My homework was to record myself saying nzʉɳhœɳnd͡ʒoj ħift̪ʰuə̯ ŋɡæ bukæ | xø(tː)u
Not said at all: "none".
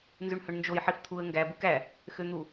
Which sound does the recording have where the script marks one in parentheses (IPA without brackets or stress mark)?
n̪